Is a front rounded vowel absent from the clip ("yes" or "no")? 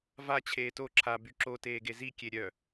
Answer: no